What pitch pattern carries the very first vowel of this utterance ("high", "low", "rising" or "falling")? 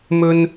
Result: low